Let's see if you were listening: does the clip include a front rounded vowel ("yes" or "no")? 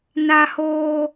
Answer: no